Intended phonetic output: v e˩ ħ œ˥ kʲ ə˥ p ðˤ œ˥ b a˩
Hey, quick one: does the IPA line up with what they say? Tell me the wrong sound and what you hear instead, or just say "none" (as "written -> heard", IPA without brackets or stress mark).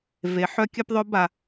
none